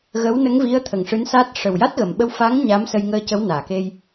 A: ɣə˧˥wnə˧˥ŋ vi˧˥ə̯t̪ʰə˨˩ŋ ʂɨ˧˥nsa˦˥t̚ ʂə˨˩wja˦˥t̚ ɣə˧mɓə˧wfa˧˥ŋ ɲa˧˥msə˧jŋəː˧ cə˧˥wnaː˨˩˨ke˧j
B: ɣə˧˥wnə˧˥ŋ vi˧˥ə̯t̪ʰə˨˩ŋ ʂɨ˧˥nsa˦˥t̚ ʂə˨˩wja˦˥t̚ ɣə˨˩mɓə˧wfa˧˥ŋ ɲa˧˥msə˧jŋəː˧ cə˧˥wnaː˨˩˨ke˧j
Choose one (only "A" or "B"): B